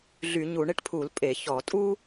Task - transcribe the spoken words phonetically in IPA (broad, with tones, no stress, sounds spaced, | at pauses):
ɮ y˧˩˧ ɲ u˧˩˧ ɳ e˥ ʈ pʰ u˧˩˧ l pʼ e˧˩˧ ç ɔ˧˩˧ tʼ u˥